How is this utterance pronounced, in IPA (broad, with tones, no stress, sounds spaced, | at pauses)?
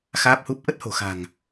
x aː˦˥ p̚ h u˦˥ p̚ ʔ ə˦˥ t̚ h o̤˨˩ x a̤˨˩ ŋ